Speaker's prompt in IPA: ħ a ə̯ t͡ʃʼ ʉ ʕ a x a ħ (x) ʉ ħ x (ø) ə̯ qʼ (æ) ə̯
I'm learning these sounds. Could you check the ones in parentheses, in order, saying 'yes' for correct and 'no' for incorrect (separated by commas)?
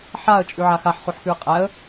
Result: no, no, yes